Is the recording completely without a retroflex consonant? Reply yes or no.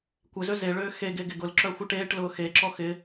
no